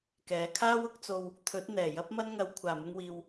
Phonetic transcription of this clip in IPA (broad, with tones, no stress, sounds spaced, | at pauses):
k ɛː˨˥ kʰ aː˥ w ʊ˨˥ k̚ t͡s o˧ w | t̪ʰ ɵ˨˥ t̚ n̪ ɛː˨˩ j ɐ˥ p̚ m ɐ˥ n ŋ ɐ˨˧ w kʷʰ aː˨˩ m ʊ˧ ŋ w iː˨ w